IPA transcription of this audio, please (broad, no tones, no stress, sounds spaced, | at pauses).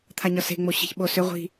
t̪ʰ a ɲ ɒ s e̤ ŋ͡m o ɕ i̤ ç ɓ o s ʏ ʁʷ i̤